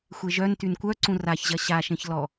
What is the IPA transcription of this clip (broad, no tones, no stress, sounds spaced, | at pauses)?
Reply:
xʷ e ʒ œ n t y n kʷ œ ǀ ũ r a ç ʑ ɐ ɕ a ʃ ẽ ç l ɔ